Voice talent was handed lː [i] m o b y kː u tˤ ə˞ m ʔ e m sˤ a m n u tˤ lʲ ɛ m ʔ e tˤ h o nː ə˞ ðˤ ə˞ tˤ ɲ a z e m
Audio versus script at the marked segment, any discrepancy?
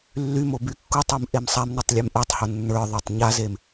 yes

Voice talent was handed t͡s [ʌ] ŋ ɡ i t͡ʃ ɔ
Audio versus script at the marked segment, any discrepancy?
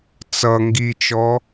no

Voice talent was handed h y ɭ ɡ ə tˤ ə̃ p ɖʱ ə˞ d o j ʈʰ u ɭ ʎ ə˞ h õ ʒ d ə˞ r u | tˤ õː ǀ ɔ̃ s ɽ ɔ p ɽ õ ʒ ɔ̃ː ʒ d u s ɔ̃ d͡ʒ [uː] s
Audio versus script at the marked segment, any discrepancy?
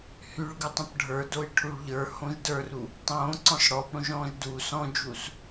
no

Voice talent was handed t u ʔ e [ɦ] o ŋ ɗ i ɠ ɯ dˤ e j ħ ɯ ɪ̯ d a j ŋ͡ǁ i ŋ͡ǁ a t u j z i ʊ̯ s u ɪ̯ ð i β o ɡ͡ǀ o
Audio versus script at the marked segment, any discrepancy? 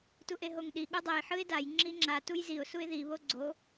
no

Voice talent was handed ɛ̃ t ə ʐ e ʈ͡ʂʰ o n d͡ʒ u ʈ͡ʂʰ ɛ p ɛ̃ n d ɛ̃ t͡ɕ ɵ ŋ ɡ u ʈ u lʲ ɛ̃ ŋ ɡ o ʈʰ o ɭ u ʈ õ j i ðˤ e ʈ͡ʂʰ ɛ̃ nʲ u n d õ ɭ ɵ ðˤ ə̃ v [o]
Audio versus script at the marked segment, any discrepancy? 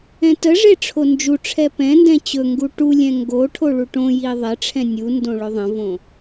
yes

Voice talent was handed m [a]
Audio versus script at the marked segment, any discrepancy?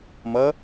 yes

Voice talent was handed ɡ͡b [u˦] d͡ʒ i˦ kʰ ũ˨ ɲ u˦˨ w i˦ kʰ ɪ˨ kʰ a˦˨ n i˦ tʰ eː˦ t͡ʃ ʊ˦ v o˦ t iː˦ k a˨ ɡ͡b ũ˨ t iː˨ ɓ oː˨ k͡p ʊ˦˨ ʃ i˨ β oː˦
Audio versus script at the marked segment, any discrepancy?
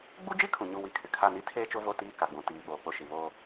no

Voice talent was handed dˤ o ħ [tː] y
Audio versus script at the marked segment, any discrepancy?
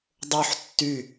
no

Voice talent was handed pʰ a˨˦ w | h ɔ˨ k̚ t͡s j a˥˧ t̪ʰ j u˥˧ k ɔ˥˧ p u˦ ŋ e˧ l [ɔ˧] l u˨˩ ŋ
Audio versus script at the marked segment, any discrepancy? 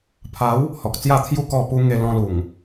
yes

